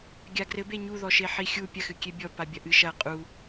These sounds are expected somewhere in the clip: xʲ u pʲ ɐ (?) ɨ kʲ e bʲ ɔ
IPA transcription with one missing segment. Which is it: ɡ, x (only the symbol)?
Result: x